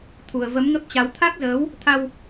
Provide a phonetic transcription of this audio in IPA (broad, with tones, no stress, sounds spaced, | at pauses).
t̪ʰ u˨˩ ə̯ v ə˨˦ m ŋ ə˦˥ p̚ t͡ɕ a˨˦ w t̪ʰ a˦˥ k̚ z əː˨˦ w | t̪ʰ a˧ w